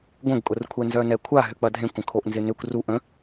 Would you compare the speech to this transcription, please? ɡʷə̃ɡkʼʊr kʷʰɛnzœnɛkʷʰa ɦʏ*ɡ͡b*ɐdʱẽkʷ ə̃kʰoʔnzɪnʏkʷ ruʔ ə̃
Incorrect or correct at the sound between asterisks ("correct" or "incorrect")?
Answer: incorrect